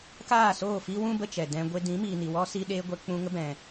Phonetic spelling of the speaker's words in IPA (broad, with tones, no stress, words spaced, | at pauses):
kaː˦˨soː˦˨fi˦wũ˦ bə˦t͡ʃɛ˨dɛ̃˦ɡʷe˦ dĩ˨˦miː˨ni˨wɔ˦ si˦ɗeː˦ɡʷɛ˦ k͡pũ˧ŋə˦bɛ̃˨